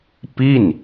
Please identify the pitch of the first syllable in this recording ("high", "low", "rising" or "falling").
falling